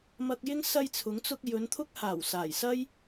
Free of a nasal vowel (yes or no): yes